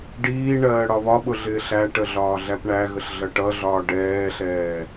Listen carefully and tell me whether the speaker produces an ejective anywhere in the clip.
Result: no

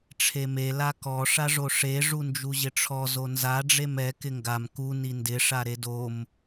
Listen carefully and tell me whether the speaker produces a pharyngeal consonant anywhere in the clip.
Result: no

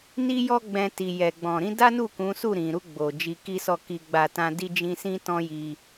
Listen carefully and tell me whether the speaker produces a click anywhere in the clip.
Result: no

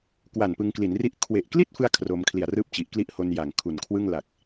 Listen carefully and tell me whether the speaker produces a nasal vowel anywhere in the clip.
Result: no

